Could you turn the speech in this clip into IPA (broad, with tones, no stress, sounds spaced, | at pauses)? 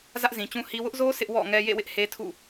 z ä˦ ʔ z ĩ˨ t͡ɕ ũ˦ h i˦ w ʊ˦ ʔ z o˦ s ɪ˦ ʔ w ɔ̰˦˨ ŋ ɛ˦ j ḛ˦˨ w ɪ˦ ʔ h e˦ tʰ ṵ˦˨